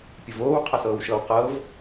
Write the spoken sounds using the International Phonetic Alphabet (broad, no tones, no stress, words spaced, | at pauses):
pʲəvoːw qʰɐsɤːwʃɤw qɤv